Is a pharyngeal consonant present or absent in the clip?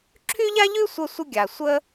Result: absent